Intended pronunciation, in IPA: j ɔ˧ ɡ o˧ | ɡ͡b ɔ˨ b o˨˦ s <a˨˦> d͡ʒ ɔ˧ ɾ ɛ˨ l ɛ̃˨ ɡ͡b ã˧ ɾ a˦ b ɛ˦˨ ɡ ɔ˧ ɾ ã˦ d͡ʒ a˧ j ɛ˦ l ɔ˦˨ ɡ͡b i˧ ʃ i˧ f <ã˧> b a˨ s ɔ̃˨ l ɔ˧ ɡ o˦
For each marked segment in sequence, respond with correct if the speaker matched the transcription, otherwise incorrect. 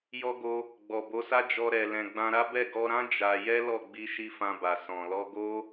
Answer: incorrect, correct

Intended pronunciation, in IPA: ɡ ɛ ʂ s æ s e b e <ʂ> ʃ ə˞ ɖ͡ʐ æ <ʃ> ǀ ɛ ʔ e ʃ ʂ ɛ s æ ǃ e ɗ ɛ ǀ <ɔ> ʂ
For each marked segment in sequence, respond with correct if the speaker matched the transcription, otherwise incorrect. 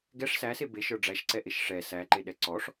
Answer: incorrect, correct, correct

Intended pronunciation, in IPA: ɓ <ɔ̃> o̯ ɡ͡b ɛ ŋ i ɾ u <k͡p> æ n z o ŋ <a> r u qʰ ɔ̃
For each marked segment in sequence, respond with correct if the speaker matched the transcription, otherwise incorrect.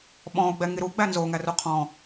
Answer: correct, incorrect, incorrect

